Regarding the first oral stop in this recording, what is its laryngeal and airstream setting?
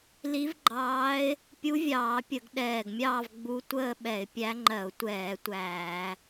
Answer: click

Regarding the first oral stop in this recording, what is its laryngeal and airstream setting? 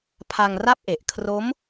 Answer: aspirated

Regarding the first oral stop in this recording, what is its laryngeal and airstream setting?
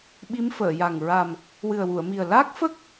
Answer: implosive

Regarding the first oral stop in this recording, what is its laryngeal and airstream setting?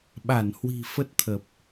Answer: implosive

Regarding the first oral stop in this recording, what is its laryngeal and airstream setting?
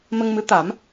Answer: plain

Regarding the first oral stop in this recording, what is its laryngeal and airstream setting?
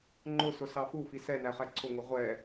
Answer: click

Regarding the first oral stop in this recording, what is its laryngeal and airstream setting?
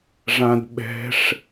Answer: plain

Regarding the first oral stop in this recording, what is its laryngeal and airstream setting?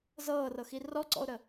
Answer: click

